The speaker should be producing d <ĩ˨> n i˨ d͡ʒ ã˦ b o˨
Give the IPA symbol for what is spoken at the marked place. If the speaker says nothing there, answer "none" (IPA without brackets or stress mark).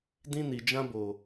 ĩ˦